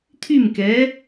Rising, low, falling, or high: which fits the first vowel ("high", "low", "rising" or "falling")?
falling